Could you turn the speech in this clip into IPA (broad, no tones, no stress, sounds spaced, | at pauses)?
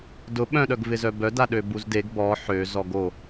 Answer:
d ʊ ɓ œ̃ ɗ œ ɡ v ɪ z œ b œ d a ɗ ø b u z d e ɡ b ɔ ħ ø z ɔ ɡ o